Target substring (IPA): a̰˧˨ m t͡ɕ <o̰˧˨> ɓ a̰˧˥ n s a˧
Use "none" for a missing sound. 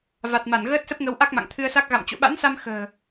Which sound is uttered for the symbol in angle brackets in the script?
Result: o̰˧˨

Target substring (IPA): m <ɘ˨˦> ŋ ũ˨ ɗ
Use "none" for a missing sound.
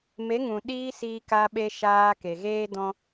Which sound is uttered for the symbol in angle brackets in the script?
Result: e˨˦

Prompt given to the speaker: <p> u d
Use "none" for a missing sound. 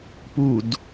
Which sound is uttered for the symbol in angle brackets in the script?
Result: p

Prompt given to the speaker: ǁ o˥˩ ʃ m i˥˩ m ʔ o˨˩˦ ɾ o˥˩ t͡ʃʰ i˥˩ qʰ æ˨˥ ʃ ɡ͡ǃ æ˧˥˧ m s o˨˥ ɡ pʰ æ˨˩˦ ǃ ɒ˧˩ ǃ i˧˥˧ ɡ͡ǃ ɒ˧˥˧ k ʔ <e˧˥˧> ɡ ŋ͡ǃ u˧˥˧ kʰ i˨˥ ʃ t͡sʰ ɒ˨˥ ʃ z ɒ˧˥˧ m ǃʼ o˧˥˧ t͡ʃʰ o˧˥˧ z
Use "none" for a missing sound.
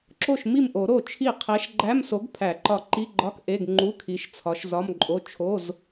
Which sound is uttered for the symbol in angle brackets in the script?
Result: e˧˥˧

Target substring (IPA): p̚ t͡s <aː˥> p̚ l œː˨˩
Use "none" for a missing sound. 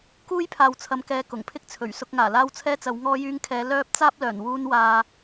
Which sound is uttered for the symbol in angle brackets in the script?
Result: aː˥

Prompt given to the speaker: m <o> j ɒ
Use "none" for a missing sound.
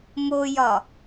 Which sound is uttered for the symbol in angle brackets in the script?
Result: o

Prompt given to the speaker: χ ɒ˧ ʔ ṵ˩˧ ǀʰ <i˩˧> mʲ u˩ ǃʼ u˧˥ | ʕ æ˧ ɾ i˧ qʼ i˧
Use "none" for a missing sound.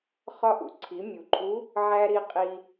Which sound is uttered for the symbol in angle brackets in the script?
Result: i˩˧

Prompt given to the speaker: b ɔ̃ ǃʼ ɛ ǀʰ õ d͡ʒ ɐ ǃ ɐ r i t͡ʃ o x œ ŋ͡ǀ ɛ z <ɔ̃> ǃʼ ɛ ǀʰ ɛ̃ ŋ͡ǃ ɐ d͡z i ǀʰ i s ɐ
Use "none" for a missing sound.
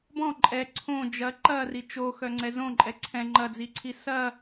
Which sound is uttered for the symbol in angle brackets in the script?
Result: õ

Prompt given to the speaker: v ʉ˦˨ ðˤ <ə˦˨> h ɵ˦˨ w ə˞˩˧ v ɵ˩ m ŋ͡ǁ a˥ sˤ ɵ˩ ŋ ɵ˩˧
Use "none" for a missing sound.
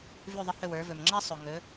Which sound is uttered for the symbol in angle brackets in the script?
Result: ə˦˨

